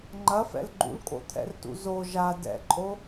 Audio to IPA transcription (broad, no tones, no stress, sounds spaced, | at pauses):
ŋ͡ǃ ɐ f ɛ̰ l ɡ͡ǃ ṵ l kʼ o̰ t̪ʰ ɛ̰ r t ṵ z o ʒ a d ɛ̰ ǃʼ o